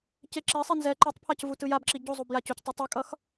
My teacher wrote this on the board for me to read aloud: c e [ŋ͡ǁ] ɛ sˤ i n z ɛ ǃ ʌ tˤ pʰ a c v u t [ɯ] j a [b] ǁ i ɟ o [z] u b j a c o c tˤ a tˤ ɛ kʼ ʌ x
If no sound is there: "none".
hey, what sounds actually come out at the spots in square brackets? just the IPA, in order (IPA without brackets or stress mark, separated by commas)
ǁ, ɯ, b, zˤ